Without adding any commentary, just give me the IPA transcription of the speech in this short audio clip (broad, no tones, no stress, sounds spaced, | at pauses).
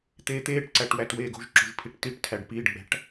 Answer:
t̪ eː t̪ eː ʈ ǀ æ ʈ w æ t w eː ɡ o̤ ʒ ǁ o̤ ʒ pʰ i ʈ t i ʈ tʰ æ ɖ p iː ɖ ɡ͡b æ̤ ʈ